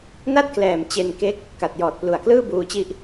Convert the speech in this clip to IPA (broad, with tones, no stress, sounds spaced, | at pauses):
n a˥˩ t̚ k l ɛː˨˩ m t͡ɕ e˧ n k e˦˥ k̚ | k a˨˩ t̚ j ɔː˨˩ t̚ p l u˨˩ a̯ k l ɯː˥˩ b uː˧ t͡ɕ i˦˥ ʔ